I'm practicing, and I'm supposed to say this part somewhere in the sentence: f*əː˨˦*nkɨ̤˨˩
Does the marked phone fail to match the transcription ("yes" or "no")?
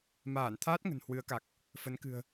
yes